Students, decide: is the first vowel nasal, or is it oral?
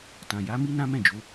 nasal